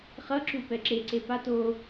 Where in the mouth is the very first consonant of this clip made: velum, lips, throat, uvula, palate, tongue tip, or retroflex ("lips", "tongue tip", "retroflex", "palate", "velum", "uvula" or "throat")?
uvula